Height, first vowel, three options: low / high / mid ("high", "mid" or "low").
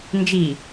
high